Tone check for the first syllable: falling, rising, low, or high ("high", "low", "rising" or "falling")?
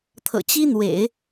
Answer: low